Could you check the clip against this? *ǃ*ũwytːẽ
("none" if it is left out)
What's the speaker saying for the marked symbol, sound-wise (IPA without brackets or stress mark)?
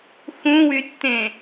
x